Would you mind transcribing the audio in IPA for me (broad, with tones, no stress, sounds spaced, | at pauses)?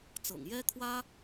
t͡s ɤ̰˨˩ ŋ j ɛ˥ kʰ w ä˥